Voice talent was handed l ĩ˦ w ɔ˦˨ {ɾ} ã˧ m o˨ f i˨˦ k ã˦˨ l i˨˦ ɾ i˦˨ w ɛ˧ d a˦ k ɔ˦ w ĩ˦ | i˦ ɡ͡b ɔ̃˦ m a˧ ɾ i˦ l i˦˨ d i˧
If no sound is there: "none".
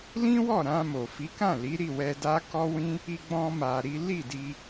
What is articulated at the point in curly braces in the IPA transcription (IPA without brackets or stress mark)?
ɾ